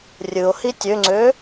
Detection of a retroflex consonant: absent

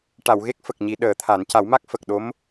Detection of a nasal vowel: absent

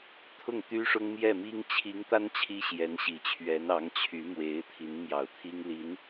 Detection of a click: absent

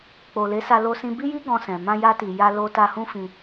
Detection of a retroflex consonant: absent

